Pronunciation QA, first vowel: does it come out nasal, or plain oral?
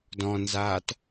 nasal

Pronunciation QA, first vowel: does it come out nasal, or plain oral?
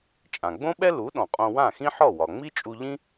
nasal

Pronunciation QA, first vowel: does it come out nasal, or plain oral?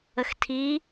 oral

